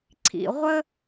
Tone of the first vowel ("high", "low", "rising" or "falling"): low